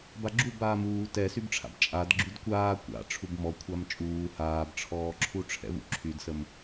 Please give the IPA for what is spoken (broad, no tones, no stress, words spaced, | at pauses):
baɡ͡ǁubaːm uː tɛsybʈ͡ʂʰa̰b t͡ʃʼad ɡ͡ǁydkʷaː kʷa̰ ʈ͡ʂʰubmɔ kʷʰamt͡ʃʼuː haːbʈ͡ʂʰɔːǁʰu ʈ͡ʂʰɛ̰vṵǁʰydsəm